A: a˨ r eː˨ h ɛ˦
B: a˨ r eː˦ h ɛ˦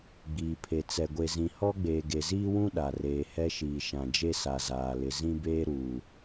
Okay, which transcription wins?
A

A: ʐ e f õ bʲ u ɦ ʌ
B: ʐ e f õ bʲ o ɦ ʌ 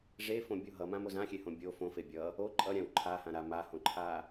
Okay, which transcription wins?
B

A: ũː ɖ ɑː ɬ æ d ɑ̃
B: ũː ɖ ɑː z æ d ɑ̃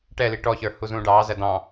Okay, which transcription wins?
B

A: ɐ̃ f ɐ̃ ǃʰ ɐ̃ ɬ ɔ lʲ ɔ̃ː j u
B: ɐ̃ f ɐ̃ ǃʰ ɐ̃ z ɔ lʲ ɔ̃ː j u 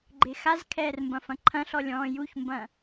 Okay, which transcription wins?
A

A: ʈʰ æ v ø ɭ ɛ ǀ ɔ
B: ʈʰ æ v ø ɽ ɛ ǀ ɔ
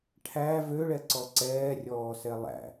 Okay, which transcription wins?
A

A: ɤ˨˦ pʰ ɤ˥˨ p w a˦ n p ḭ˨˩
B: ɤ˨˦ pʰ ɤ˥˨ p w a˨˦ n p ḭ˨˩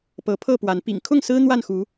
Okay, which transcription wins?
B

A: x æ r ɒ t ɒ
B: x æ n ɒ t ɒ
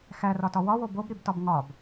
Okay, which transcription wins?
A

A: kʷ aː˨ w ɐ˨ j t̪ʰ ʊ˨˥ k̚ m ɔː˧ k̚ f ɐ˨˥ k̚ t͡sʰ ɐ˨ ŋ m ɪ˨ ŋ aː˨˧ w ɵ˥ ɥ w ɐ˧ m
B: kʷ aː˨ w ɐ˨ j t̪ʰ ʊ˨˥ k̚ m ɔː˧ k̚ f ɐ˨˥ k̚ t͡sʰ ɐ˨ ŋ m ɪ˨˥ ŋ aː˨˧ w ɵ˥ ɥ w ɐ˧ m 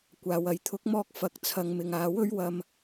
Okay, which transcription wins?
A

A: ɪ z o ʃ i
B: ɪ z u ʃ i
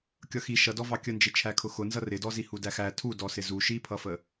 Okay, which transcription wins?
B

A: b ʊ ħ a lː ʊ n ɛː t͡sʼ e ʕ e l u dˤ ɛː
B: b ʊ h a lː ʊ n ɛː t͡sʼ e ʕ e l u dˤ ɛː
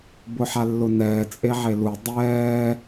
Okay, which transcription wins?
A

